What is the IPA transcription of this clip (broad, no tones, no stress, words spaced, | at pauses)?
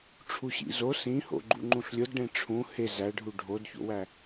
ʈ͡ʂʰuɕḭzo sĩho̰ɡ͡ǃṵ ŋ͡ǃũɬlʲodɖẽ ʈ͡ʂʰũ he zæɖʱu ɖʱodço̰wæ